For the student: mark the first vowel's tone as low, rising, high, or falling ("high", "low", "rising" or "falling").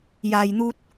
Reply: low